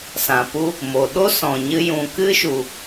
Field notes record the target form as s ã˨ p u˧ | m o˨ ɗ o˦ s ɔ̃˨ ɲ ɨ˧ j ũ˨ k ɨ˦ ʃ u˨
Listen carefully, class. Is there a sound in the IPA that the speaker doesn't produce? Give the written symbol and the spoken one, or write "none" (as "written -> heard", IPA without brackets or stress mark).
none